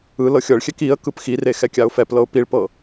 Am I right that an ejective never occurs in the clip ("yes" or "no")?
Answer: yes